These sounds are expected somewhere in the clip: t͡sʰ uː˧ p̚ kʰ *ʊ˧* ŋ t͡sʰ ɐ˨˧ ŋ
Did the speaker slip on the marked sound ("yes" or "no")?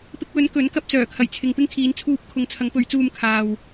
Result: yes